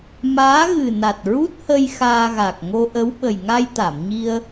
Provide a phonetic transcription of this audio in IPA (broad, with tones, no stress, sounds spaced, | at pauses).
m aː˧˥ ɣ ɨ˨˩ n a˨˩ t̚ ɹ u˦˥ t̚ h ə˧ j x aː˧ ɣ a˨˩ k̚ ŋ o˧ ʔ ə˧˥ w ɓ ə˨˩ j ŋ a˧ j t̪ a˨˩˨ m ɲ i˧ ə̯